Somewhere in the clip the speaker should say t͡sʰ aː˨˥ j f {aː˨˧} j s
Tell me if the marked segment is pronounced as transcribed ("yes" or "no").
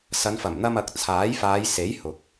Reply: yes